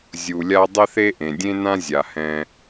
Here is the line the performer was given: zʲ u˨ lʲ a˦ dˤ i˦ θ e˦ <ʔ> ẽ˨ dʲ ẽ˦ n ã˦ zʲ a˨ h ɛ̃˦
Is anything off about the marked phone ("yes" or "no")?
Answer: no